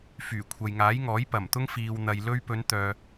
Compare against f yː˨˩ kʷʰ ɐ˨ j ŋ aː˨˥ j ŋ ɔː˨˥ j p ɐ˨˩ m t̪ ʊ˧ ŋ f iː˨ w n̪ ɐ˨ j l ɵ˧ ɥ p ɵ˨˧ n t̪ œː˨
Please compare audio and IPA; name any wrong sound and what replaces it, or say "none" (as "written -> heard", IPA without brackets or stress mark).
none